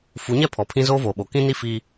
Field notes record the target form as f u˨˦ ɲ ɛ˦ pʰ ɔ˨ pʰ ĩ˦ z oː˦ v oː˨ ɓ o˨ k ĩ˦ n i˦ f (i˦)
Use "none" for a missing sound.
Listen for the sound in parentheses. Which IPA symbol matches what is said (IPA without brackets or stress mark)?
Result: i˦